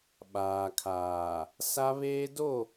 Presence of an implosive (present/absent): present